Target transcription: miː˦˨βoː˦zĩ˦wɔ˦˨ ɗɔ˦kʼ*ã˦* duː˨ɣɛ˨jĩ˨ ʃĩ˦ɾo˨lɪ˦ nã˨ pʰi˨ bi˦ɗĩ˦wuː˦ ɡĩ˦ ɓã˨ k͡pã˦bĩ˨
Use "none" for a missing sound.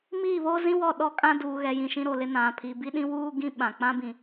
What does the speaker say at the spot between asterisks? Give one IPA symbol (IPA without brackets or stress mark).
ã˦